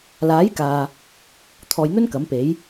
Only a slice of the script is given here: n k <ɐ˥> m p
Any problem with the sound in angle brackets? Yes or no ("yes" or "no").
yes